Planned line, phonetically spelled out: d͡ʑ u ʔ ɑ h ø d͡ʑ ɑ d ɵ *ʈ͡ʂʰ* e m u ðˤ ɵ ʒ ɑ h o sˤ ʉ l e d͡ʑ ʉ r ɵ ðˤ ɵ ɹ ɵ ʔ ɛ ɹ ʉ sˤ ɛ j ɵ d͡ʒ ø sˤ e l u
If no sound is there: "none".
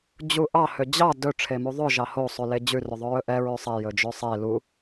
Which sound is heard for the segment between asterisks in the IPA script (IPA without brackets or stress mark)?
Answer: ʈ͡ʂʰ